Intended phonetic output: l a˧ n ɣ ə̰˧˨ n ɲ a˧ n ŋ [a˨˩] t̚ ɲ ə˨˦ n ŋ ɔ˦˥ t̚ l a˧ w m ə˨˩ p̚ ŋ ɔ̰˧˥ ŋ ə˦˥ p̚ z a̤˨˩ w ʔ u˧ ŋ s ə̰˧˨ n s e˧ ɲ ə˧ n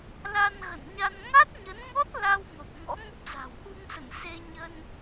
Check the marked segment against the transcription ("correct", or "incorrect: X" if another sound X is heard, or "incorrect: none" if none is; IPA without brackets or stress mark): incorrect: a˦˥